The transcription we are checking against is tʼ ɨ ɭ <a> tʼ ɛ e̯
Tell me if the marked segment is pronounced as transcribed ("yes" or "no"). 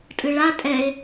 yes